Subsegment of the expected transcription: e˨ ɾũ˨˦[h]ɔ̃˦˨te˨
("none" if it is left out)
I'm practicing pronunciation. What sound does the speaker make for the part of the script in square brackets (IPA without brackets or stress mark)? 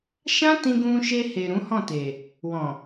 h